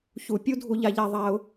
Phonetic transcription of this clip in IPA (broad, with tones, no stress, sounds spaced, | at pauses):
ç u˦ pʲ u˥ dʱ u˦ ʎ a˦ ʎ a˦ ðˤ a˥ ʊ̯